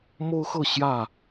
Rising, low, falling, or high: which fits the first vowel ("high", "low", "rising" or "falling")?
high